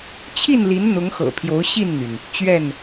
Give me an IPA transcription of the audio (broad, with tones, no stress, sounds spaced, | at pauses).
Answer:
t͡ɕʰ i˥˨ n l i˨˦ n n̪ ʊ˨˦ ŋ x ɤ̰˨˩ pʰ j o˨˦ ʊ̯ ɕ i˥˨ n n̪ y˩ n | t͡ɕ ɥ ɛ˥˨ n